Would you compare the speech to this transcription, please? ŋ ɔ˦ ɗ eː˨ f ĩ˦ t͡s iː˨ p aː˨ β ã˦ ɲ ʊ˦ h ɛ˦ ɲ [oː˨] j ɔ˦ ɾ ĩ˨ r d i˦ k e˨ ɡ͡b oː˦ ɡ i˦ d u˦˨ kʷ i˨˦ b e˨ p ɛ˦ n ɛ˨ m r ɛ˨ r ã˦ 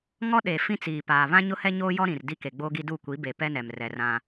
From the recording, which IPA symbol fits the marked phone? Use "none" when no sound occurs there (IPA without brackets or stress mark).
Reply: oː˦